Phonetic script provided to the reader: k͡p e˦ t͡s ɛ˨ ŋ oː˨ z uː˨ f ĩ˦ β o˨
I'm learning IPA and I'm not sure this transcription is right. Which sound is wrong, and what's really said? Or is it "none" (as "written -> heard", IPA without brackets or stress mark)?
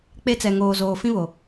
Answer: uː˨ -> oː˨